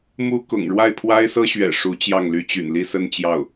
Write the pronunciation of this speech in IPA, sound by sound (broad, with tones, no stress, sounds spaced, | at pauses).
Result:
m u˥ k ʊ̰˨˩ ŋ ɻ w a˥˩ ɪ̯ pʰ w a˥ ɪ̯ s ɤ˥ ɕ ɥ ɛ̰˨˩ ʂ u˧˥ t͡ɕ j ɑ˥˩ ŋ l y˥ t͡ɕ y̰˨˩ n l i˥˧ s ə˥˧ n t͡ɕ j ɑ˥˩ ʊ̯